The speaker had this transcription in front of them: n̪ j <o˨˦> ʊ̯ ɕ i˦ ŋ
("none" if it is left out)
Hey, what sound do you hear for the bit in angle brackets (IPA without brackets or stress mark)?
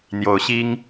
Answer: o˨˦